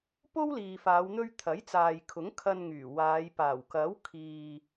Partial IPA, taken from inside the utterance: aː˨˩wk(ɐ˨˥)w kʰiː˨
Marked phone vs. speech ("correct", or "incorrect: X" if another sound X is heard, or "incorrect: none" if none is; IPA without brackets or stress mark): correct